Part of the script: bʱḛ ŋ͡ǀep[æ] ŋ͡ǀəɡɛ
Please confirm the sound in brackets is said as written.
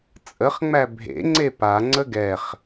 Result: no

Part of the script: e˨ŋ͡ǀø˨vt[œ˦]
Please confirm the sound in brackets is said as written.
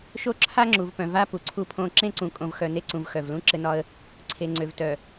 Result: no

